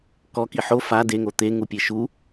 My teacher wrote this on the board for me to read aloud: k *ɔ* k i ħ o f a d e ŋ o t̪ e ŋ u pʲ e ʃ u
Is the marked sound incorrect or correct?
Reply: correct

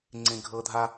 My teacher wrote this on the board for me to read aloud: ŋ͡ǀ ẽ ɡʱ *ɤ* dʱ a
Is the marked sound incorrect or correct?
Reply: correct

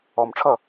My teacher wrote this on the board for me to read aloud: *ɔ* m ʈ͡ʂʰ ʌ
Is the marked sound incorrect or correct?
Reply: correct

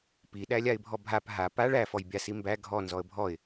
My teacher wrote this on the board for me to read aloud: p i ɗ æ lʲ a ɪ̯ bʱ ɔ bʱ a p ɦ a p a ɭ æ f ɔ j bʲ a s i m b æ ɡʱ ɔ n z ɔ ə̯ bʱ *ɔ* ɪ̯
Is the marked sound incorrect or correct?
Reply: correct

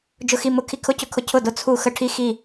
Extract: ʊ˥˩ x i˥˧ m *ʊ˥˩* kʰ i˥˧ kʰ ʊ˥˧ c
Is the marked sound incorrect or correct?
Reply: correct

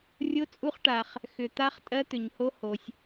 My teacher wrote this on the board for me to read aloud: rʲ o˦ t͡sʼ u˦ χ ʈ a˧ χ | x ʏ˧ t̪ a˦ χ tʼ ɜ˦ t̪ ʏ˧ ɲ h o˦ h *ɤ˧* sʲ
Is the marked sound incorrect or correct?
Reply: incorrect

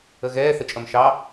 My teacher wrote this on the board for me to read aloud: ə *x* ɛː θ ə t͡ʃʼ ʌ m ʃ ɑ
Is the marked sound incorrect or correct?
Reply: incorrect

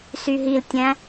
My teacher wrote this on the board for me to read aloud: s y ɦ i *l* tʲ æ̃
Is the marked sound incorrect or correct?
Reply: correct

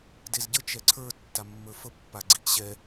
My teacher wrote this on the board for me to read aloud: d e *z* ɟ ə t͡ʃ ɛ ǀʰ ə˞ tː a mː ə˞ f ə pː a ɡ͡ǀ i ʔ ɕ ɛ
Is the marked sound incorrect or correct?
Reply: correct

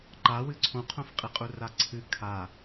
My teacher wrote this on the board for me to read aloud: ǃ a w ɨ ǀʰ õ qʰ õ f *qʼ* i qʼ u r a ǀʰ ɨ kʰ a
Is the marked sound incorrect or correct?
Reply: correct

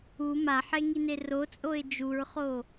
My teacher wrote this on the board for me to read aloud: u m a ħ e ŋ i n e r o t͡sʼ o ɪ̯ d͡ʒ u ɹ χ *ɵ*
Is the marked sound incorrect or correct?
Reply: incorrect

